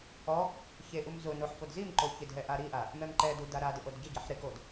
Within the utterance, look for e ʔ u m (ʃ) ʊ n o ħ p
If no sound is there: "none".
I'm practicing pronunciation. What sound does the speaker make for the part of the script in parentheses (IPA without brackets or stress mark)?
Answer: z